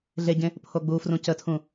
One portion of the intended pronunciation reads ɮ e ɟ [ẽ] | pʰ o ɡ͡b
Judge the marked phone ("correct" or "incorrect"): correct